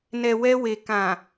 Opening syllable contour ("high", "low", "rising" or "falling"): low